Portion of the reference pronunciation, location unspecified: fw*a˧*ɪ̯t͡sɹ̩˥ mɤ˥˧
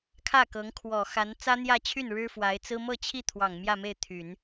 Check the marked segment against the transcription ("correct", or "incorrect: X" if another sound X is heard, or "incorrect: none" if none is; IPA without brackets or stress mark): incorrect: a˧˥